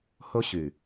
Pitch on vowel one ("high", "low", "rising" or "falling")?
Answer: high